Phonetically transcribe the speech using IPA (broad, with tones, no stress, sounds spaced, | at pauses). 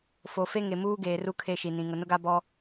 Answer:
f o˨ f e˦ ŋ e˨ m uː˦ ɡ eː˨ r u˦ kʰ e˦˨ ʃ i˨ n ĩ˨ ŋ ʊ˨ n ʊ˦ ɡ a˦ b ɔ˦